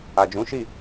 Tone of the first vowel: low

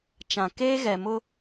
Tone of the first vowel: low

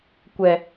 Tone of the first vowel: low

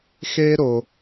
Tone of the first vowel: high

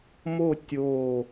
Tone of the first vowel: falling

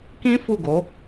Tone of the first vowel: high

